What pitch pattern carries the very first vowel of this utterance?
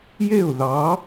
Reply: falling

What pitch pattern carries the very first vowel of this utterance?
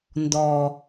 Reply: low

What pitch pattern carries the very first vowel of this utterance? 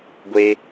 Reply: high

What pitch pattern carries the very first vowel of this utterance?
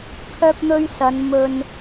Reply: high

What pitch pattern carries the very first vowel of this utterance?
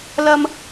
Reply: high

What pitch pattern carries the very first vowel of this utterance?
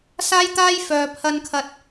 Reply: high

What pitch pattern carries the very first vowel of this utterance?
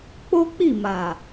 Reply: high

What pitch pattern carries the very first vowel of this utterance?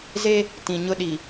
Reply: high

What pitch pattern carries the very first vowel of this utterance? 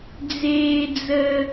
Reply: high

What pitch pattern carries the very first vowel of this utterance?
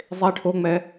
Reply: high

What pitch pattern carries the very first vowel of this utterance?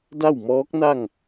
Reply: falling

